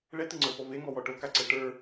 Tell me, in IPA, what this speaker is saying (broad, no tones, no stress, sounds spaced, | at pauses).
ɭ ɛ t̪ ɨ ŋ͡ǀ ə˞ f ɔ v e ŋ ɔ w ɔ ʈ o k a ǀ ɛ ʈ ə˞